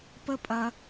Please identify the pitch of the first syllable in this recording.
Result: high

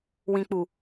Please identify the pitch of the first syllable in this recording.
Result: low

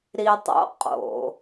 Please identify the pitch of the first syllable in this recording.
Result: low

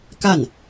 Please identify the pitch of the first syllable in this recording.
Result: falling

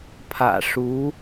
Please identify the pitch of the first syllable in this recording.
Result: low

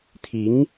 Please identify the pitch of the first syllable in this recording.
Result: rising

